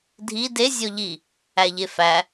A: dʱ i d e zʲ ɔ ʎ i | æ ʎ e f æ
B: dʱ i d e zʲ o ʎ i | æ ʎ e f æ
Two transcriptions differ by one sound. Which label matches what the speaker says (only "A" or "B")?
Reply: A